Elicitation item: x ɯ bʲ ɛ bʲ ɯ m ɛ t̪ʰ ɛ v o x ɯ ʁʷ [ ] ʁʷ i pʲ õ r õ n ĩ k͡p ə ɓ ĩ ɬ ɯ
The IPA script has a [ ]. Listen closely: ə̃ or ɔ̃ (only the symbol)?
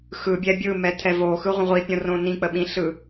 ə̃